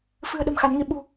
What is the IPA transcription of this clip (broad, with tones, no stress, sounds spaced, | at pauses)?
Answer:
f ɨ̤˨˩ ə̯ ɗ ə̤˨˩ m x a˨˦ n ŋ i˧ ɓ ṳ˨˩